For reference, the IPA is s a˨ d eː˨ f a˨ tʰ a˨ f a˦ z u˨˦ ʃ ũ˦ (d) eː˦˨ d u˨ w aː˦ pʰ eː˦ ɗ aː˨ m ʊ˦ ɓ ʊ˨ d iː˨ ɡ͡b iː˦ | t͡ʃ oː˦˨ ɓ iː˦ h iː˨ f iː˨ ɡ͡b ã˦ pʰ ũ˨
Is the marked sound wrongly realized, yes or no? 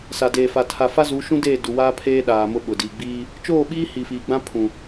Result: no